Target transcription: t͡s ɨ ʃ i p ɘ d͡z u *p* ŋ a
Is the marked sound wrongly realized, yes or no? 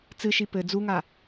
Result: yes